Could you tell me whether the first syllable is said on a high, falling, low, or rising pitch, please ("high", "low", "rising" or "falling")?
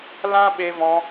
high